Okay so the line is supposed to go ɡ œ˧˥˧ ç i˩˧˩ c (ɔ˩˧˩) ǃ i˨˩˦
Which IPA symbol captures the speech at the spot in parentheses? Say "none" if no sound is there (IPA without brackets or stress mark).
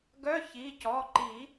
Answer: ɔ˩˧˩